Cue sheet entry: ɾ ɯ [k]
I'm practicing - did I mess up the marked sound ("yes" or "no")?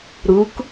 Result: no